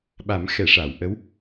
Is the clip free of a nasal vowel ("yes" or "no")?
yes